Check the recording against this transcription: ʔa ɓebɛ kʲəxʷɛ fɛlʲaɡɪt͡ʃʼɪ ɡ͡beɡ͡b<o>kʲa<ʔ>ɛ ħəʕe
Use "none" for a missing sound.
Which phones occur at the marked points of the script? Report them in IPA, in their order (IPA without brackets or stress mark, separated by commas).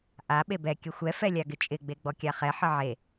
ɔ, χ